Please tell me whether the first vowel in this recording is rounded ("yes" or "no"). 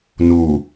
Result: yes